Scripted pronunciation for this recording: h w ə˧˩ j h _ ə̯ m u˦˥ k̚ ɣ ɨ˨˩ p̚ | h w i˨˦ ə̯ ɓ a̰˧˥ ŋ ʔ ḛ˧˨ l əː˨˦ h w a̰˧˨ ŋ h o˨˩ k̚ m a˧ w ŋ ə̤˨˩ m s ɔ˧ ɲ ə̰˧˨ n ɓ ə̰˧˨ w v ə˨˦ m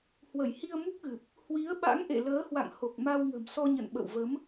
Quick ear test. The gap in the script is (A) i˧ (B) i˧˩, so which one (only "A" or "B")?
A